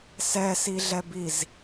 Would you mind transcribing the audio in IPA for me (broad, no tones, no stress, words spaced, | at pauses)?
sɛsiɮɛbiz